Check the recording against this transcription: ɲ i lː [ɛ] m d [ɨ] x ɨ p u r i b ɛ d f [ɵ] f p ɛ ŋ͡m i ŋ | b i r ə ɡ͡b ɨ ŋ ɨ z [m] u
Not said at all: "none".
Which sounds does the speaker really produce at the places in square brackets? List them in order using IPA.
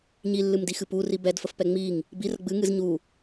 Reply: ɨ, i, ə, ɲ

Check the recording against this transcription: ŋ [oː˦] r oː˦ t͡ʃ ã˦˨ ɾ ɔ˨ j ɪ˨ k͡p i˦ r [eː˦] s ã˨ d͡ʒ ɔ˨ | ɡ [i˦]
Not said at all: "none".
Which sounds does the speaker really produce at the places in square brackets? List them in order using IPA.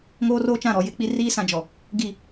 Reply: oː˦, iː˦, i˦˨

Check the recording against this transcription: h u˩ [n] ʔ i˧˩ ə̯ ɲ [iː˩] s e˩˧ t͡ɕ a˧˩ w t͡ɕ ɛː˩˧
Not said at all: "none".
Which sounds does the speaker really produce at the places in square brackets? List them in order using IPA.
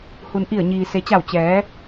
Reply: n, iː˩

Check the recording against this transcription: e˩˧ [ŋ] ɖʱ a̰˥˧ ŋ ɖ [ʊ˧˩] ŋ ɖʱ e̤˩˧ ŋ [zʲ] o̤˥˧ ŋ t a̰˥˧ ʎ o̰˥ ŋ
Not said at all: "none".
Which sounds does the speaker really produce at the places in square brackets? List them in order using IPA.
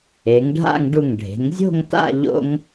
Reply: ŋ, u˧˩, zʲ

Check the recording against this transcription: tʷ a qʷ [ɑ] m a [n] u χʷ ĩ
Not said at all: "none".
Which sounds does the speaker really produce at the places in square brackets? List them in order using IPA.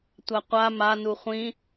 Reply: a, n

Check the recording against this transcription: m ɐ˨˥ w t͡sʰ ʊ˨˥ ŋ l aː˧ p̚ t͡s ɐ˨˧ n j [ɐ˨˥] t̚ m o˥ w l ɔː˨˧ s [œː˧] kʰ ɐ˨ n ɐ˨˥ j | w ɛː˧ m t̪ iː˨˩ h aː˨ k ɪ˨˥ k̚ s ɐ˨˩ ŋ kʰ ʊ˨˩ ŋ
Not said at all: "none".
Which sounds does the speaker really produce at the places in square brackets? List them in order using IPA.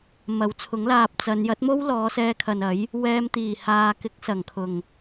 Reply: ɐ˨˥, ɛː˧

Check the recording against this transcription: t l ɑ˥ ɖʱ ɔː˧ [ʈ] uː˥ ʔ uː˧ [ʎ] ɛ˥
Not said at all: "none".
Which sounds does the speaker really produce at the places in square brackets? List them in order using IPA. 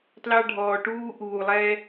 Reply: ʈ, lˠ

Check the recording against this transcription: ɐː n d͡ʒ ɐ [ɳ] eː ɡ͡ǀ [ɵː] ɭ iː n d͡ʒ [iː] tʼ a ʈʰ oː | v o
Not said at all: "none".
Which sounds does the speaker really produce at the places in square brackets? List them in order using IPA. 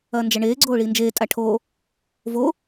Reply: ɳ, oː, eː

